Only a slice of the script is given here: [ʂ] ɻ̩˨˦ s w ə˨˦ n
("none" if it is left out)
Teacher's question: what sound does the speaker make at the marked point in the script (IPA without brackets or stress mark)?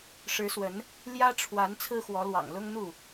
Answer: ʂ